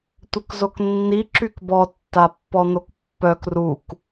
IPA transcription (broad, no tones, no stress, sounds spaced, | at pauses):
tʷ ə k z o k nː i ǁ y k b ɔ tː a pː ɔ n̪ o k pː œ k r u k